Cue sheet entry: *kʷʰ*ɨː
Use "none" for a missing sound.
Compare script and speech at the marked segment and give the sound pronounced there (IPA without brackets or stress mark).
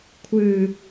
kʷʰ